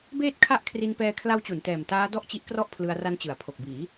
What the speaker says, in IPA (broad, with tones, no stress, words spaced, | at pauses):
beː˥˩t̚kʰa˥˩ʔkʰri˧n pɛː˧kʰla˦˥wt͡ɕu˩˦n tɛː˨˩mtaː˦˥ dɔ˥˩ʔt͡ɕi˦˥ʔkrɔ˥˩ʔ pʰlɯ˧a̯ra˦˥nt͡ɕɯ˩˦a̯ pʰo˨˩k̚biː˩˦